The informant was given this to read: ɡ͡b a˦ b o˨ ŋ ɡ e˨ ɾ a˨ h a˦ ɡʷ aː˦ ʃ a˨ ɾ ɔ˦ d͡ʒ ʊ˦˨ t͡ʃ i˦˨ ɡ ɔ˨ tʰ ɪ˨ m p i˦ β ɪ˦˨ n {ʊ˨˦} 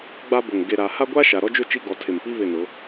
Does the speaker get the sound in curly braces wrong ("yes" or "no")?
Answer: no